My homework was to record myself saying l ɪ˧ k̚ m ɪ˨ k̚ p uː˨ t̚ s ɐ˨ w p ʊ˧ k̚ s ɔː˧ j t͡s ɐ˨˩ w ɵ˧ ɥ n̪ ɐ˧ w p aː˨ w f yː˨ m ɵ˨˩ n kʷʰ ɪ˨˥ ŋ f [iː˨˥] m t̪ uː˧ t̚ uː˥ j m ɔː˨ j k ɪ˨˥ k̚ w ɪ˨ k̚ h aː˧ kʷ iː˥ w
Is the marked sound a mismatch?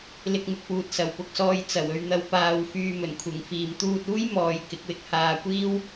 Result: yes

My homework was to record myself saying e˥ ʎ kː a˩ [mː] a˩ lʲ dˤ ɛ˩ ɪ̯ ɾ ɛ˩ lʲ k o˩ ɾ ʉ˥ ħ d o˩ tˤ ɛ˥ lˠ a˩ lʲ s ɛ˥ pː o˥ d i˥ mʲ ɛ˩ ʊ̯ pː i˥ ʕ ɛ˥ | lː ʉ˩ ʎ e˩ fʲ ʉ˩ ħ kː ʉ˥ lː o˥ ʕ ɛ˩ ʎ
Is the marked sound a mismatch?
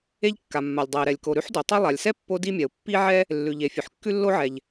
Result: no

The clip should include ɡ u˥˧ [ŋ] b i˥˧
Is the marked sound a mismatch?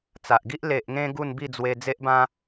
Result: yes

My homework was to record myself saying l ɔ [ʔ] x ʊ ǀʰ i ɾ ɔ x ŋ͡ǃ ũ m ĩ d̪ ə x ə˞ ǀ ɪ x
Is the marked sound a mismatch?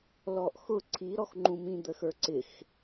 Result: no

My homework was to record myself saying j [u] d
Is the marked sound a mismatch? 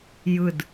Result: yes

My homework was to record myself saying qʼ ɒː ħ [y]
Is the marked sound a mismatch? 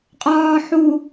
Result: yes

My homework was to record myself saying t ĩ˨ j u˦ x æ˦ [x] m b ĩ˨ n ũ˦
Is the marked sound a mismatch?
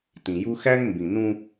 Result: yes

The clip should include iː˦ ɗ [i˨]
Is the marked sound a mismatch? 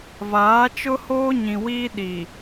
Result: no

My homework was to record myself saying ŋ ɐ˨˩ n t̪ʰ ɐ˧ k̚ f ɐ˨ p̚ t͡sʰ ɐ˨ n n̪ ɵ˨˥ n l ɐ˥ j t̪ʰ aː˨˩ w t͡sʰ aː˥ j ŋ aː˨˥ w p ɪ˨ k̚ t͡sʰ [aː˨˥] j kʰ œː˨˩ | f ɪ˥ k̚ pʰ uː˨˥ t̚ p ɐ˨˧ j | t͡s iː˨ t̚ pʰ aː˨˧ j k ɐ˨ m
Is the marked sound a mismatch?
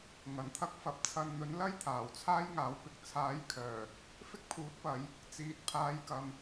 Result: no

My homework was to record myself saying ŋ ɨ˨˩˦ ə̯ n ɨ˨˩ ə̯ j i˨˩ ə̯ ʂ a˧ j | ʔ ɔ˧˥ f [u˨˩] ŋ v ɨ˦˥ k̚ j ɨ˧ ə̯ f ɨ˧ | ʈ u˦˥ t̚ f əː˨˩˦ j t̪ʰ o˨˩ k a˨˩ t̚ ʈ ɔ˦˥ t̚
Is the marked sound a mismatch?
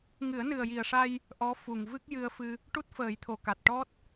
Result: no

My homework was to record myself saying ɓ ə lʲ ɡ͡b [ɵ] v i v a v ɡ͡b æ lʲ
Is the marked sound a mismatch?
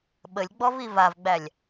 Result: yes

